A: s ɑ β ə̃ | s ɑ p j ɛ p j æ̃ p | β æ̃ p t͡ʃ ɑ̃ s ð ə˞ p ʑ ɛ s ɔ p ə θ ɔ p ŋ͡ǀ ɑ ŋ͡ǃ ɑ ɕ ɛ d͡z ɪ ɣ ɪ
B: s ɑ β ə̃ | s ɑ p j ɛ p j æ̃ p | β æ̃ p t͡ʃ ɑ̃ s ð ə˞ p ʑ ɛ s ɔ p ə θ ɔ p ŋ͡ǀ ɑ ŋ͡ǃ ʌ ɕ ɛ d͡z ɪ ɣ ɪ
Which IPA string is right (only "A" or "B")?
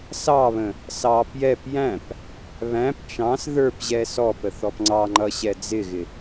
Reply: B